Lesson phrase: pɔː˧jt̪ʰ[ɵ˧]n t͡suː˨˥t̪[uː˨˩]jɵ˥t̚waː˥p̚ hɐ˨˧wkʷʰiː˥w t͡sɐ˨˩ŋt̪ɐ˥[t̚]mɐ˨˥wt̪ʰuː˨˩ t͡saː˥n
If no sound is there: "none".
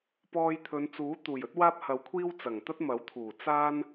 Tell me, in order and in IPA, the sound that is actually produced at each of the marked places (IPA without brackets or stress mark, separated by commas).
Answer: ɵ˨˧, uː˨˩, t̚